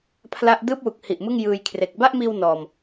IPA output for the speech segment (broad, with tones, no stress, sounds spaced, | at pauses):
pʰ l a˥˩ ʔ d ɯː˥˩ p̚ w u˨˩ k̚ h i˨˩ ʔ m ɯ˥˩ ŋ j ɯː˧ j kʰ r e˨˩ k̚ b a˥˩ ʔ m iː˧ w n ɔː˨˩ m